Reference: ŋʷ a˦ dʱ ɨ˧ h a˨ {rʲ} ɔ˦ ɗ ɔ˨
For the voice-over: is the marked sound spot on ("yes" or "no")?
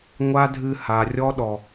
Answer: yes